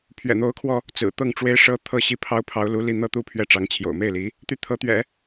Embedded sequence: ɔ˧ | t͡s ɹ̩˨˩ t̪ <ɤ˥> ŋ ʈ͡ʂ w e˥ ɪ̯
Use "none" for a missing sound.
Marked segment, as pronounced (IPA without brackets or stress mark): ɤ˥˩